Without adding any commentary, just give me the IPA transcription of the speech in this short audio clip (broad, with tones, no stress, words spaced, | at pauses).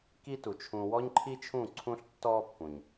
ki˦tu˨ t͡ʃʰũ˧ wɔ˦ɲǃʰi˦t͡ʃʰũ˦˨ ǀʰũ˦ɬtːɔː˦pːũ˨ɲ